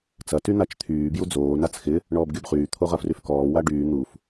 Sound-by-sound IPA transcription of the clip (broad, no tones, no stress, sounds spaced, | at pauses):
t͡s ɐ t y n̪ a t͡ʃ t̪ʰ yː b j u d͡z oː n a t͡s x ɪ | ɳ ɔː b ɡʲ o b χ yː t̪ʰ o ʁ ɐ f r y f k ɔː w a ɖ yː n̪ u f